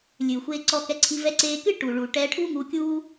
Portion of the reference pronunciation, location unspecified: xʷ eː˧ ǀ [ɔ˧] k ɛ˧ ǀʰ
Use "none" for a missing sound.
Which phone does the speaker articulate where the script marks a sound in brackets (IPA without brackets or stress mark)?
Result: ɔ˧